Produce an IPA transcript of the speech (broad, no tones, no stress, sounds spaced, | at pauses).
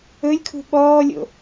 ɵ lʲ kʰ ṳ ɓ ɔː lʲ o̰